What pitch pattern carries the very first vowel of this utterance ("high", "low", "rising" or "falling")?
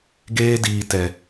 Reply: high